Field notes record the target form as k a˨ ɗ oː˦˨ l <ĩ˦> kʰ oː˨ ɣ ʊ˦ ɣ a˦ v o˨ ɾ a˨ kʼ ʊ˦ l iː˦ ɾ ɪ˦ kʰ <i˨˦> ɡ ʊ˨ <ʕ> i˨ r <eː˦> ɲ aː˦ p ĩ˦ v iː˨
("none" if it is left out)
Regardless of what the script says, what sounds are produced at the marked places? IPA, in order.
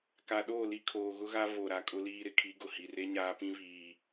i˦, i˨˦, h, e˦

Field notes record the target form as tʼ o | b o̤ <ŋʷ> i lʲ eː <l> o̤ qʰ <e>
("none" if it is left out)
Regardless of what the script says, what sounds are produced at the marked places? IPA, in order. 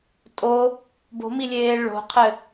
m, ɭ, ɘ

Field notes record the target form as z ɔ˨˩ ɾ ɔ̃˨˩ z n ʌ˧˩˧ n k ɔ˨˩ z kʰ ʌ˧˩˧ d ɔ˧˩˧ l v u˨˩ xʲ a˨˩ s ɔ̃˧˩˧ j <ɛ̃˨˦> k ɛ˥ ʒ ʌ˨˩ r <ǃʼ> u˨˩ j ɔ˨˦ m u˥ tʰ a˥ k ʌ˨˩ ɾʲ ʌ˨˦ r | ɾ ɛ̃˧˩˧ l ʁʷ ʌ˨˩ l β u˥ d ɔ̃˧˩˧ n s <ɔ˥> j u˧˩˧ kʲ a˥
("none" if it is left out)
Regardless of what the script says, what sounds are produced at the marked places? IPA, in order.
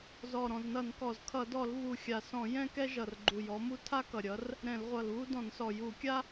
ɛ̃˥, ɡ͡ǃ, ɔ˨˩

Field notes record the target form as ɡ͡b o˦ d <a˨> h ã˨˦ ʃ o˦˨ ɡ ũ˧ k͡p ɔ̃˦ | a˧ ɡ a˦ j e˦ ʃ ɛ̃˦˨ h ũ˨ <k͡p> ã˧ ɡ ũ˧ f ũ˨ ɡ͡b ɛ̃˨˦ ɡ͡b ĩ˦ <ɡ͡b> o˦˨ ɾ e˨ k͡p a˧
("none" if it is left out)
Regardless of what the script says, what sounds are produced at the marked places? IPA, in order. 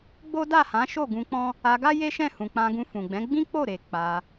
a˦˨, k͡p, k͡p

